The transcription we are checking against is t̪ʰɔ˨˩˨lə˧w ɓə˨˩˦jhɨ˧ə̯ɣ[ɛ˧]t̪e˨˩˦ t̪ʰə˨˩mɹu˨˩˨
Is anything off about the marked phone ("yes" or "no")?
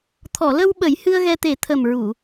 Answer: no